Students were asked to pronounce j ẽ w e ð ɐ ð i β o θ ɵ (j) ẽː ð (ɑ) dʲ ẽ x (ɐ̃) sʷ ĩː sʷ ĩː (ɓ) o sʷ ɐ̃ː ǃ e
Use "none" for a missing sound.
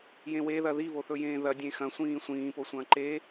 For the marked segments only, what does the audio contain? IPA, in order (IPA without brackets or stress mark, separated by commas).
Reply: j, ɐ, ɐ̃, p